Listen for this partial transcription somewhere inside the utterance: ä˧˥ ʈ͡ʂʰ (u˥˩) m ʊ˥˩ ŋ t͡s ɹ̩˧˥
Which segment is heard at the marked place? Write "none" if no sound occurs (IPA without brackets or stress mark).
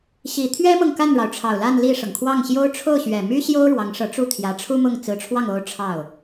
u˥